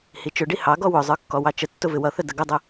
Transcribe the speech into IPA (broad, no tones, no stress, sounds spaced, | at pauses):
h i t͡ʃ ʊ ɖ i h ɑ ɡ ɔ w ʊ zˤ ə˞ kː ɔ w ɑ t͡ʃ ə tː ʊ v ɪ w ʌ θ ə d ə ɡ ʊ dˤ ə